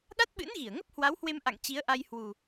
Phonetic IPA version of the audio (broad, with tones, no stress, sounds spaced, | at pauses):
ɗ a˦˥ t̚ ɓ ɨ̰˧˥ n ɣ i˧˩ ə̯ ŋ ə˦˥ p̚ h w a˨˦ w h w e˧ m ʔ a̰˧˨ ŋ t͡ɕ i˨˦ ə̯ ʔ a˧ j h w u˨˩